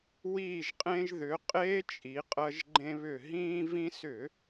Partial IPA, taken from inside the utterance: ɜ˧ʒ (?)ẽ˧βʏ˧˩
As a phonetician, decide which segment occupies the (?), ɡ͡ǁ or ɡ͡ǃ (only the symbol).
ɡ͡ǃ